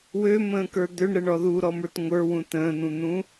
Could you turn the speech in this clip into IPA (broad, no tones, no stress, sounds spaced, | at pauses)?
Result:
w ø m ə̃ː k ə˞ d̪ ø ɳ ɾ ə ɳ ɔ ð u ɾ ɔ m ə˞ t ŋʷ ə˞ w ũ t ə̃ː n̪ ũ n̪ ũ